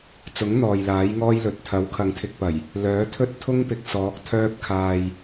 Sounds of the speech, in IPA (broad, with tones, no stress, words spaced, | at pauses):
t͡sʊ˨˥ŋ n̪ɔː˨jlaː˨˥jŋɔː˥jlɵ˨t̚ t̪ʰɐ˨˥wkʰɐ˨˧ŋ t̪ʰɪ˧k̚pɐ˨˩j | lœː˨˥ t̪ʰɵ˥t̚t̪ʰʊ˥ŋpɪ˨k̚ sɔː˨˥k̚t̪ʰœː˥p̚kʰaː˧j